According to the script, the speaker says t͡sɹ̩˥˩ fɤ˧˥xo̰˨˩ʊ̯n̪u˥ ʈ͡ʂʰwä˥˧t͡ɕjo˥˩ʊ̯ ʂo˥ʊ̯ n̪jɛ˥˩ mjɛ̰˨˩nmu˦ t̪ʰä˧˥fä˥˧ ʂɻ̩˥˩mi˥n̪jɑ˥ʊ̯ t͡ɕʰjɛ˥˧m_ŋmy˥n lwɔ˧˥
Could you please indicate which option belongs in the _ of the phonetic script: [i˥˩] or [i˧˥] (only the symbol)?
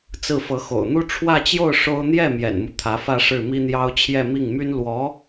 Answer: i˥˩